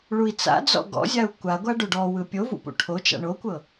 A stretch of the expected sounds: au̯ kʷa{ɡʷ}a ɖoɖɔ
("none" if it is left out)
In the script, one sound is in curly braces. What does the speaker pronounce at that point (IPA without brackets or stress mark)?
ɡʷ